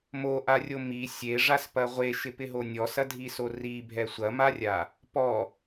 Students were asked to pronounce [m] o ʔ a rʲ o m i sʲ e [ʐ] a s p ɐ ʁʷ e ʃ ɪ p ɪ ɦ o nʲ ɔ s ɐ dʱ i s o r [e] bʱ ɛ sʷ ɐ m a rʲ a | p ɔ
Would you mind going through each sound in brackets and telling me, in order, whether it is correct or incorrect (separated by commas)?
correct, correct, incorrect